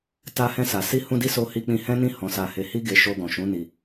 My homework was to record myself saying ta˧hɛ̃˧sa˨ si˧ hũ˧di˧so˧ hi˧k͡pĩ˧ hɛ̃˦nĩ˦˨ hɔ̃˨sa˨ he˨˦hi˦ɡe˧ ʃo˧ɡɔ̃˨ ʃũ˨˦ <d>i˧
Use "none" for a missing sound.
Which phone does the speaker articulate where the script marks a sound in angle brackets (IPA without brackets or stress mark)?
n